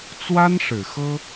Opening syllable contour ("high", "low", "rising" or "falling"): high